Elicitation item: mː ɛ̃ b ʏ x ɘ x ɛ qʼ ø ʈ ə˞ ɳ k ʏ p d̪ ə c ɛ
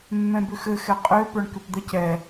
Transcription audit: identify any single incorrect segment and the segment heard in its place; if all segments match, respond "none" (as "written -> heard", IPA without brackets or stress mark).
ʈ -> p